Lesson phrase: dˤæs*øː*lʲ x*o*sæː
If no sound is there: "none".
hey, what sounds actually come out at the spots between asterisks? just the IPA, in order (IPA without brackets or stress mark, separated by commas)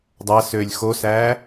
øː, o